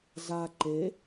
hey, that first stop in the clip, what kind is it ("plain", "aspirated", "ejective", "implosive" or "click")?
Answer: click